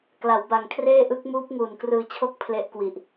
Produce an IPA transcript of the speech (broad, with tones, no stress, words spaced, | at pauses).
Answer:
kla˩˦wba˨˩ŋkʰreː˥˩ ʔɯ˦˥k̚muː˦˥p̚ ŋuː˨˩nkrɯː˧t͡ɕʰo˥˩k̚ pʰle˦˥ʔkwi˨˩ʔ